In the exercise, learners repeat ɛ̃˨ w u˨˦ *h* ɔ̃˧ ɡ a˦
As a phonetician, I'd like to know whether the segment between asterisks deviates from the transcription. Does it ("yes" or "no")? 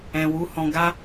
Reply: no